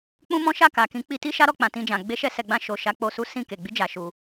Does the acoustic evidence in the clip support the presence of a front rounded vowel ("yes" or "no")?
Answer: no